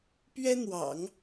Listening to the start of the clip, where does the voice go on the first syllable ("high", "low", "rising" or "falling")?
high